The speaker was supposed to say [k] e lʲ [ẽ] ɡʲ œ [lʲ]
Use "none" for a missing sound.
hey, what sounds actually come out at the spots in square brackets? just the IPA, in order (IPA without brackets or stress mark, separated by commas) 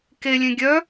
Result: k, ẽ, none